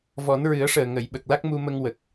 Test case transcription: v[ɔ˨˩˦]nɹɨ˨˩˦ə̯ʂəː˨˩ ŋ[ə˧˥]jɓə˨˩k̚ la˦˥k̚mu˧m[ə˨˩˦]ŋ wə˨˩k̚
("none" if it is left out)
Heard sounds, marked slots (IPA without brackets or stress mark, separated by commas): ɔ˨˩˦, ə˨˩˨, ə˧